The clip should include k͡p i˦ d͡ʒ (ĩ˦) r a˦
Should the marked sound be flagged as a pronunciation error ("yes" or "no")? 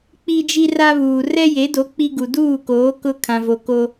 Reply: yes